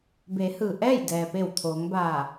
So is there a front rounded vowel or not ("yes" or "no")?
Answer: no